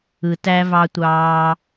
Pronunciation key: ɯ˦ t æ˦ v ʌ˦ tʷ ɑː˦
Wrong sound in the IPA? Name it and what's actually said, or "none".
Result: ʌ˦ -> ɑ˦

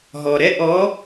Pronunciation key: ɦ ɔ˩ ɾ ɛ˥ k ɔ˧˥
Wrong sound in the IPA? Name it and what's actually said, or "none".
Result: k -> ʔ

